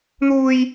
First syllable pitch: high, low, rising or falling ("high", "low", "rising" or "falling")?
high